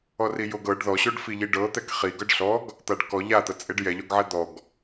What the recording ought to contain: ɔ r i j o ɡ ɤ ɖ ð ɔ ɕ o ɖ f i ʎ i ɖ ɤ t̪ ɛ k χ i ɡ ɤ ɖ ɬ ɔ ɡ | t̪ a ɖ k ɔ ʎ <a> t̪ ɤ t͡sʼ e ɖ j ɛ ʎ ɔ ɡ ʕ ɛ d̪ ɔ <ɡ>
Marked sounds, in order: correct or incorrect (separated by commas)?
correct, correct